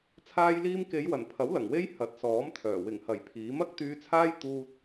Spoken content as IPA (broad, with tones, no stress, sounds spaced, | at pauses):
t͡sʰ aː˧ j l iː˧ m k e˨˧ j w ɐ˨˩ n pʰ ɐ˨˥ w l ɐ˨˩ ŋ w e˥ j h ɐ˨˥ t̚ s ɔː˨˥ m t̪ʰ œː˨˩ w ɪ˨˩ ŋ h ɐ˨˩ j pʰ iː˨˥ m ɐ˥ k̚ t̪ yː˧ t͡sʰ aː˥ j t̪ uː˥ t̚